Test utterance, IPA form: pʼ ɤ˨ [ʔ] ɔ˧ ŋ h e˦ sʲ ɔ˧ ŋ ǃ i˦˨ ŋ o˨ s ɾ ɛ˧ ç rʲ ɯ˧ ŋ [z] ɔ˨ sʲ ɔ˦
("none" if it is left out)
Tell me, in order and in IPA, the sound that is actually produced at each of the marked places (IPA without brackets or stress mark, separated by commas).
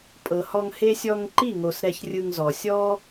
h, z